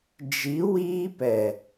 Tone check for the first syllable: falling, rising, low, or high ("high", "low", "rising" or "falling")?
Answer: rising